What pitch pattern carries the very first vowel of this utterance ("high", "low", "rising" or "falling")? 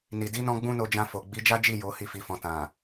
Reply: low